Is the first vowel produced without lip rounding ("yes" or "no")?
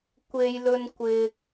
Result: yes